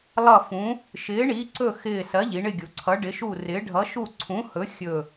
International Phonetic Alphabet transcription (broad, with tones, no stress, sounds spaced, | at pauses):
lˠ ʌ˦˨ f ũ˨˥ | ʃ ɪː˨˥ ɳ i˨˥ ǀ ɵ˦˨ x ɪː˦˨ s ɜ˨˥ ʎ i˩˧ ɳ ɪ˦˨ ɡʲ u˩˧ ǀʰ ʌ˨˥ ɖ ɪ˨˥ ʃ u˦˨ r ɪː˨˥ ɖʱ ʌ˨˥ ʃ u˦˨ ǀʰ ũ˨˥ h ɵ˨˥ xʲ ɵ˦˨